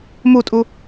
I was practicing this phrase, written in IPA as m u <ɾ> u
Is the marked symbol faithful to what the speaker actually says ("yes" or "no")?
no